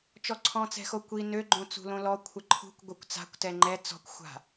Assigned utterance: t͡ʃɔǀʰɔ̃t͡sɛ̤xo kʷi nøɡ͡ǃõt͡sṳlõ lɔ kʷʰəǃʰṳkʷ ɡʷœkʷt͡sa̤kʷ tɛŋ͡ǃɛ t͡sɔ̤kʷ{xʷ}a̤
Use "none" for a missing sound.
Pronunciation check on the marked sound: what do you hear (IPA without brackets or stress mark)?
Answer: xʷ